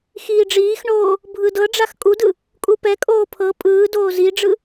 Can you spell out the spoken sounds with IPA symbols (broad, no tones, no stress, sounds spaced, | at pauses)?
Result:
x iː ɖ͡ʐ iː x ɳ oː | bʱ ɯ d ɤ ɖ͡ʐ a x kʼ u d ɯ | kʼ u p ɛ kʼ oː pʰ ɤ pʼ ɯː d oː z i ɖ͡ʐ ɯ